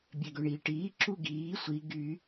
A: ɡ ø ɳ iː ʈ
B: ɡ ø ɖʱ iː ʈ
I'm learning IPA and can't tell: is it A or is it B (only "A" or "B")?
A